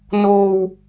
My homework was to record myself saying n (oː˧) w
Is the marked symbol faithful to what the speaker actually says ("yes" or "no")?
yes